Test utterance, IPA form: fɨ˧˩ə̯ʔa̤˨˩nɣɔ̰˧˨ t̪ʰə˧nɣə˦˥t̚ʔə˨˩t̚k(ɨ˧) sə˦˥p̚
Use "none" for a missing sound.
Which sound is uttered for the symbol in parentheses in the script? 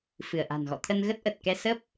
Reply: ɛ˧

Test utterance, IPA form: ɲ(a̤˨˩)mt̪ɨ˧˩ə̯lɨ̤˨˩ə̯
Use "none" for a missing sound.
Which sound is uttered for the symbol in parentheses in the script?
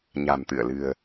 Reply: a̤˨˩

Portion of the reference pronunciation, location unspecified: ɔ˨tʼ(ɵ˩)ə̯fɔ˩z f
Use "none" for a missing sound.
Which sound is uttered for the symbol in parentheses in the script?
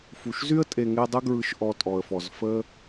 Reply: ɔ˩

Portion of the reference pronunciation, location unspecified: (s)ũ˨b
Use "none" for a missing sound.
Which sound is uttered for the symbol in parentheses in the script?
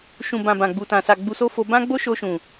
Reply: ʃ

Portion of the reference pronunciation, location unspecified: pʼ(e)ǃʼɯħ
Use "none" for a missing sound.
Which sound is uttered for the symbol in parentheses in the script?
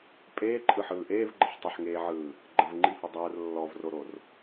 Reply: eː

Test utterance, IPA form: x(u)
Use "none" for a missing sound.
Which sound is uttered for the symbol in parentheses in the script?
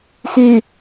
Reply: y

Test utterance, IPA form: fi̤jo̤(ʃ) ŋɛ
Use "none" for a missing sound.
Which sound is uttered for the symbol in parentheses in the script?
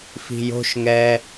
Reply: ʃ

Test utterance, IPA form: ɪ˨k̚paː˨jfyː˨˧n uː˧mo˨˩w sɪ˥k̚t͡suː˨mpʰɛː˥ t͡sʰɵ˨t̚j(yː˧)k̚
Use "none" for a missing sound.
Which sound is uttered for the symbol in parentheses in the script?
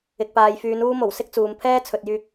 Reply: yː˧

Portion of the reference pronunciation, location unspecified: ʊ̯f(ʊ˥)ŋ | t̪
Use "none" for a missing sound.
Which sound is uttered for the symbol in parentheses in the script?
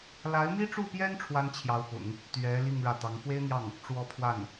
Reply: ʊ̰˨˩˦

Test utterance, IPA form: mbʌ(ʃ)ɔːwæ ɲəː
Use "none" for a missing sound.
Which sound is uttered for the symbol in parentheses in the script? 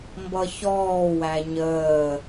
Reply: ç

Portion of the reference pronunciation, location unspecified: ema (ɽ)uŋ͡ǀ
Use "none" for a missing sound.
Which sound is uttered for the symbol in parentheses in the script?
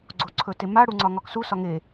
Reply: ɽ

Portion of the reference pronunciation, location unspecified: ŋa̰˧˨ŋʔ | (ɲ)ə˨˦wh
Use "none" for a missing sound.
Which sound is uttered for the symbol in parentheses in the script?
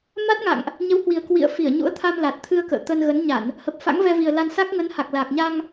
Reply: ɲ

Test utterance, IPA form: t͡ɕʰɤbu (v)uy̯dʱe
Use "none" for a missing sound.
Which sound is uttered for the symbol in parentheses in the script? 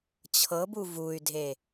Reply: v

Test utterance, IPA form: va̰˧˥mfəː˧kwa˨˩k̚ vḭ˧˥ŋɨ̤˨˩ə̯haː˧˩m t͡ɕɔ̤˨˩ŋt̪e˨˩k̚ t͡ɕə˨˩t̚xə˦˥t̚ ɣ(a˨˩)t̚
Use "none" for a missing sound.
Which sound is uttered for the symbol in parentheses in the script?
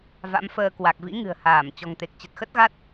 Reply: a˦˥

